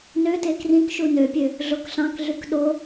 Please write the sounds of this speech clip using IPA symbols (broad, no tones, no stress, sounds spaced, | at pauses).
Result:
n ø t e k r ĩ k ʃ u n ø pʲ ø | ɮ o k ɬ ɑ̃ k ɮ y k ɗ o